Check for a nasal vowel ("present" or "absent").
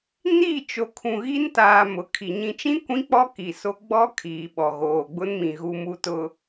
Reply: present